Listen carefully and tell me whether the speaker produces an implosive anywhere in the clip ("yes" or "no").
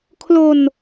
no